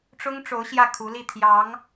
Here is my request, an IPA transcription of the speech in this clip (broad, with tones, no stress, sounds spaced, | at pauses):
ʈ͡ʂ ʊ˥ ŋ ʈ͡ʂ o˧˥ ʊ̯ ɕ j ä˥˩ kʰ u˧˥ l i˥˩ t̪ʰ j ɑ˧˥ ŋ